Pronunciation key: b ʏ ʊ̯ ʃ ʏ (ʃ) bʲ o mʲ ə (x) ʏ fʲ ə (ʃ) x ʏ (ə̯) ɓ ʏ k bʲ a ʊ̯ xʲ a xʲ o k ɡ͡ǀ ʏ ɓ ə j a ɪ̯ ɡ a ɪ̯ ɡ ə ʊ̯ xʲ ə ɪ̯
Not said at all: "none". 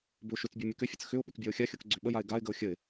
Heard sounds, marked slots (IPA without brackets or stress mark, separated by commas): t͡s, k, t͡s, ʊ̯